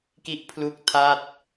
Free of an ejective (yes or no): yes